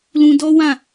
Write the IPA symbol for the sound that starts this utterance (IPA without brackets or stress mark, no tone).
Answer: l